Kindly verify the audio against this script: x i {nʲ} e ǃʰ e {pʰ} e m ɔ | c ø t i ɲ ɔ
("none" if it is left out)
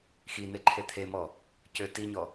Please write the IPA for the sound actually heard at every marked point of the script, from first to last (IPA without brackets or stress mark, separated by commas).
n̪, t̪ʰ